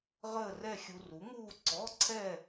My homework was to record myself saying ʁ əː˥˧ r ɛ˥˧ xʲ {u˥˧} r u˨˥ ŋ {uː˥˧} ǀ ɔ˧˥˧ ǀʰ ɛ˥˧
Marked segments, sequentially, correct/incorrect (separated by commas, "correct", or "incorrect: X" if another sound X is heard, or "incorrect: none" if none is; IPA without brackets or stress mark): incorrect: u˧, correct